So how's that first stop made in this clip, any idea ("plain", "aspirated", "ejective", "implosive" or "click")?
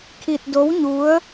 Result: aspirated